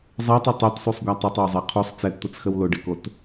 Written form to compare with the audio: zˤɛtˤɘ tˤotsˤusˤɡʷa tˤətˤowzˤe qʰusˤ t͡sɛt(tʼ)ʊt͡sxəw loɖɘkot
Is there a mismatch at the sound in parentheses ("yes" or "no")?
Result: yes